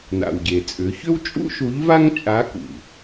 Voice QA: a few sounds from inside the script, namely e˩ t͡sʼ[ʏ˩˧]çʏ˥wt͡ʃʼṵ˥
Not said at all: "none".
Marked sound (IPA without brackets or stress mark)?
ʏ˩˧